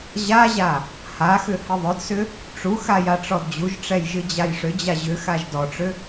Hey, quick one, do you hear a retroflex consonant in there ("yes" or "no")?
yes